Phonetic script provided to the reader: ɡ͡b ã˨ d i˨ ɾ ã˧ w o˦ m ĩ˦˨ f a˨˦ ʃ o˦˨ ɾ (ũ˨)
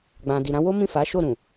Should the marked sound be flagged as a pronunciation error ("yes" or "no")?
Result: no